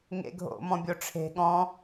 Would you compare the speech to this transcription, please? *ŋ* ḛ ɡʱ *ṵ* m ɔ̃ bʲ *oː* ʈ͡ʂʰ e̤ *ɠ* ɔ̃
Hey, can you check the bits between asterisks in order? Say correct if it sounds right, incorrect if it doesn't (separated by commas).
correct, incorrect, incorrect, correct